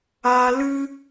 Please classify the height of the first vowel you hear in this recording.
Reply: low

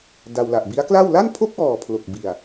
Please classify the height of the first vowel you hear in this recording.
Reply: low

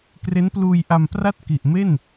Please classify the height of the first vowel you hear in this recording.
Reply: mid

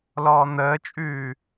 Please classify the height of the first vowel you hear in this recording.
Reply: mid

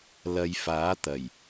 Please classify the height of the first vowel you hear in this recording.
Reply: low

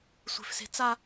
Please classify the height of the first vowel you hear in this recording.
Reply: mid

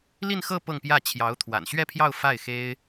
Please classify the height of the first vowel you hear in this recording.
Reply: high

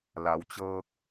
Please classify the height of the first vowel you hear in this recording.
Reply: low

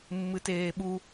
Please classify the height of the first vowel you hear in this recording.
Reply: high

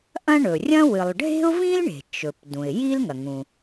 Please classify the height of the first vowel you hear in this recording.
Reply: low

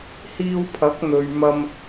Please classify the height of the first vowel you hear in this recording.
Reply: high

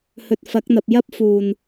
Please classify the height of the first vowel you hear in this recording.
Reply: mid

